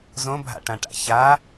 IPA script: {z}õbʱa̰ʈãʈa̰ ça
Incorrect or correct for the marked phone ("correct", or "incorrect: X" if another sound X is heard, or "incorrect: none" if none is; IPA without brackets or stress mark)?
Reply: correct